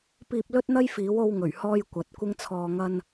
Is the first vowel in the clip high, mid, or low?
high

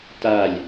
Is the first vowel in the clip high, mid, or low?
low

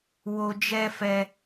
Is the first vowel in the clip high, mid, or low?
mid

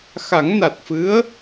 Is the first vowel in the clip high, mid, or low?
low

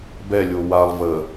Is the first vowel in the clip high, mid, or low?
mid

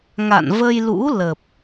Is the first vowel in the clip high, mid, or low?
low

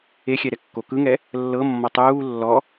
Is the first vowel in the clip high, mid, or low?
mid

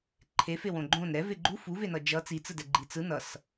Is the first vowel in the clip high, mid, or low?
mid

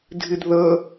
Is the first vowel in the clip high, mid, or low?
high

